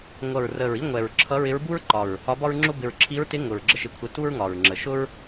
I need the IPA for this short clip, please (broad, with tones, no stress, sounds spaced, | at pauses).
ŋʷ ʌ˨˩ ɹ r ə˨˩ ɹ i˥ ŋʷ ɛ˨˩ ɹ ǁʰ ʌ˧˥ ɹ ɪ˧˥ ɹ b u˥ ɹ ǃ ɒ˨˩ ɹ | ɒ˧˥ b ɒ˥ ɹ ŋ͡ǁ ʊ˥ b ɪ˨˩ ɹ ǁʰ i˧˥ ɹ t ɪ˧˥ ŋ ʊ˨˩ ɹ ɡ͡ǁ ə˥ ʃ ɪ˧˥ kʷʰ ɪ˧˥ t u˥ ɹ ŋ ɒ˨˩ ɹ ŋ͡ǁ ə˨˩ ʃ ʊ˥ ɹ